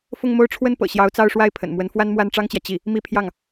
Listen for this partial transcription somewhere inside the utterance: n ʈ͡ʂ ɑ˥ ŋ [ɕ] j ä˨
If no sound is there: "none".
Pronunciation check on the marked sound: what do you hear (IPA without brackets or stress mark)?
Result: t͡ɕ